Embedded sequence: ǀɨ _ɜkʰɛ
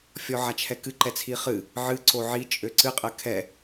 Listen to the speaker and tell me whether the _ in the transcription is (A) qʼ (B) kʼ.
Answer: A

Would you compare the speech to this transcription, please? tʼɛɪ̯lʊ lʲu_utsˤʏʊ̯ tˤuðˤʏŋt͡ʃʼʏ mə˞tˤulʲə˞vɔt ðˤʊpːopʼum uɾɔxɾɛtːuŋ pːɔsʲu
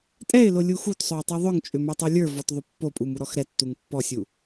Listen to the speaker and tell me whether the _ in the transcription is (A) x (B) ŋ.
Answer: A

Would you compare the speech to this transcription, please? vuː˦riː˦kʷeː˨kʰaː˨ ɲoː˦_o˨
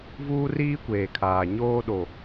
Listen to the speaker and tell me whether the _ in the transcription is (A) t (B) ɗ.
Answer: B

